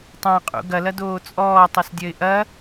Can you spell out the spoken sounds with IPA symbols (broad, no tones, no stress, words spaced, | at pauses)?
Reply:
tˤãqʼṵ ɡɐlɐdoː t͡sʼɔːtˤɛsdʲɐɪ̯ ʔɐ